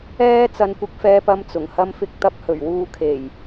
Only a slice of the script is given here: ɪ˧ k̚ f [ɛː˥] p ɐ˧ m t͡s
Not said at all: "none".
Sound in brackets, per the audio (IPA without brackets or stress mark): ɛː˧